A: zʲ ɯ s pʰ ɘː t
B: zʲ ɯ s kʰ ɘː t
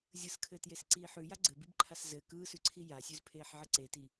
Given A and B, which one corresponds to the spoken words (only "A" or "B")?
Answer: B